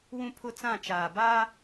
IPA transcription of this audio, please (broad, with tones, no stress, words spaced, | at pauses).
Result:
wũ˦pʰʊ˦t͡sã˦˨t͡ʃaː˨ ba˦